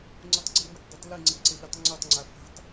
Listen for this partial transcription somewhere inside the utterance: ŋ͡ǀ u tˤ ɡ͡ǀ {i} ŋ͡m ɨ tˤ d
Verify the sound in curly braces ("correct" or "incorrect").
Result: incorrect